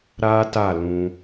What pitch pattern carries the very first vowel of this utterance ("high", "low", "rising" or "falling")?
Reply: high